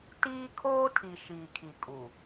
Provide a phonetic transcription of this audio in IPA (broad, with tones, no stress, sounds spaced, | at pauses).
t iː˦ kʰ oː˦ tʰ i˨ ʃ iː˨ kʰ i˨ kʼ u˨